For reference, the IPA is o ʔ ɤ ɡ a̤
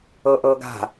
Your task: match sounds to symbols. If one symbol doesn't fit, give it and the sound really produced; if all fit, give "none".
o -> ɤ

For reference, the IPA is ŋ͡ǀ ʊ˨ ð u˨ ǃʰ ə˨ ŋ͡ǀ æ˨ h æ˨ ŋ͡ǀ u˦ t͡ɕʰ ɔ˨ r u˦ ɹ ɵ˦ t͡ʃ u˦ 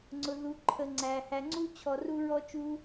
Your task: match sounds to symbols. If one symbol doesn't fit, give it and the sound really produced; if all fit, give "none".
ɵ˦ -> ɔ˦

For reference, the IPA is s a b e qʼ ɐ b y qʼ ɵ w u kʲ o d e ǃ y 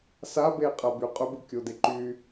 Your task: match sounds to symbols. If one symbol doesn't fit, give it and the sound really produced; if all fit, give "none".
w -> b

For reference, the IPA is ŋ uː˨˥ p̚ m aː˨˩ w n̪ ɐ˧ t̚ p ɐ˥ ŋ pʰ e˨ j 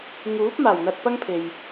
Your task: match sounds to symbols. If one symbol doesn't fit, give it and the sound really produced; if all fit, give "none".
none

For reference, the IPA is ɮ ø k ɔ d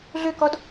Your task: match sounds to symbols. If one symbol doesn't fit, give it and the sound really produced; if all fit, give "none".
none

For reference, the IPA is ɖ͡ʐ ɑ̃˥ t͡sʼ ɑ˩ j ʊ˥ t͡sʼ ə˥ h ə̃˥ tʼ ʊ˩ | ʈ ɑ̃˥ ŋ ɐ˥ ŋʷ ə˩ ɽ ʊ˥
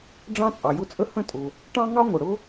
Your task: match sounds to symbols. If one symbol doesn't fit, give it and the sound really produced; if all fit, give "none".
ɐ˥ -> ɑ˥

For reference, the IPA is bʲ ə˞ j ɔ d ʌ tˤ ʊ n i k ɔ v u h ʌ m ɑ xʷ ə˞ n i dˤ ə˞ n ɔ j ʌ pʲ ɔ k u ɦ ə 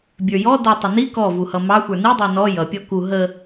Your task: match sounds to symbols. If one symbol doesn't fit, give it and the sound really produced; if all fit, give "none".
none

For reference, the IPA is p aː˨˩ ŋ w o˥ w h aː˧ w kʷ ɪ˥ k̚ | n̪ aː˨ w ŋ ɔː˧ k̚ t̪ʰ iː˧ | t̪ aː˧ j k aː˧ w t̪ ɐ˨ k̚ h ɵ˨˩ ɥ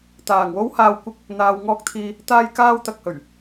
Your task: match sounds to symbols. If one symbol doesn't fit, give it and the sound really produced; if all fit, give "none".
p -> t̪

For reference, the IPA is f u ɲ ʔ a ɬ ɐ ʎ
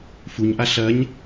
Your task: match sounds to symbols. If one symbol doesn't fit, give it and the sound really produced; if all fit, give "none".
ʎ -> ɲ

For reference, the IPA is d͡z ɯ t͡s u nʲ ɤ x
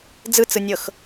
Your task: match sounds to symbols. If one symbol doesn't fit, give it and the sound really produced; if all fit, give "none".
u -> ɯ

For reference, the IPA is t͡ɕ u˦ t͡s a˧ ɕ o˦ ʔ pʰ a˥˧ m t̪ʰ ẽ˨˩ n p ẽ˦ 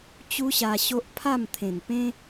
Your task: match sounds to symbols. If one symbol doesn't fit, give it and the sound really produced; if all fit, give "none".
t͡s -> ɕ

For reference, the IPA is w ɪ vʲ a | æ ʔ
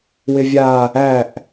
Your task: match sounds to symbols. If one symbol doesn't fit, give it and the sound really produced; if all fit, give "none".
none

